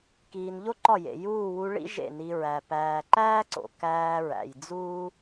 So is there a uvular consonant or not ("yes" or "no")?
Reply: no